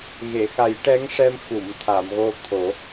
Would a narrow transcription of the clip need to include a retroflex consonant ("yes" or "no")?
yes